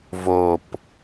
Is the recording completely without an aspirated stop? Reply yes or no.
yes